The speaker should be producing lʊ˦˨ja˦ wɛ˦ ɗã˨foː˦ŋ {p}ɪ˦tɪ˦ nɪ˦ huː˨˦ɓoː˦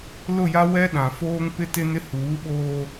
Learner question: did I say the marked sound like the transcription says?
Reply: yes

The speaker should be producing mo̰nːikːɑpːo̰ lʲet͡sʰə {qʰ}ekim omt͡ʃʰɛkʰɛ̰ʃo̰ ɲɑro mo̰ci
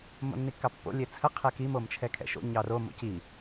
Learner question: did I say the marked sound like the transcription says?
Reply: yes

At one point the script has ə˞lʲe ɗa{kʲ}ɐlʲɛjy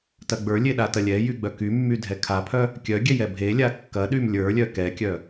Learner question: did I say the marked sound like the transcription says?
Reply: no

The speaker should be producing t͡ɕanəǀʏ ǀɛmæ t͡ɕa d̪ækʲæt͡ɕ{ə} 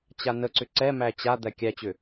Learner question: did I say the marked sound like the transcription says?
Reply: no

